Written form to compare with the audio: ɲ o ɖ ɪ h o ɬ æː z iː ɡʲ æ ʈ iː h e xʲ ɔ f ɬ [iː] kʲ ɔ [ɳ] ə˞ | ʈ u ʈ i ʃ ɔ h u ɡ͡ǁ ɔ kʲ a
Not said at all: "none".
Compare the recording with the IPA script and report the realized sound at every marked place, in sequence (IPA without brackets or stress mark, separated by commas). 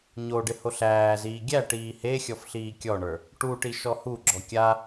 iː, ɳ